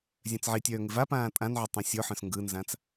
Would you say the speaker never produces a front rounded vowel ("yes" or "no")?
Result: no